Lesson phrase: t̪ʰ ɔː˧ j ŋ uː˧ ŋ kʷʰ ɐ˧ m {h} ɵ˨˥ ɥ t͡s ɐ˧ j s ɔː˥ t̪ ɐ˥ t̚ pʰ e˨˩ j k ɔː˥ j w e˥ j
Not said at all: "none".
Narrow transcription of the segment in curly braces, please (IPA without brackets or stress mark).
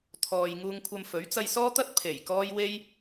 f